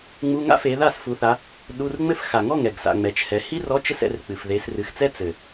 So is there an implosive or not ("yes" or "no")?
yes